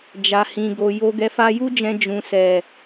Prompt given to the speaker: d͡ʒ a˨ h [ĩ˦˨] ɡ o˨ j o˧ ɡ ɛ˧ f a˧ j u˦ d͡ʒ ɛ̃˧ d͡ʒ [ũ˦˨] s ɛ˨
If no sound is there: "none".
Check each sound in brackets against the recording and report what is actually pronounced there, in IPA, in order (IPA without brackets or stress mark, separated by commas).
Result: ĩ˨, ũ˨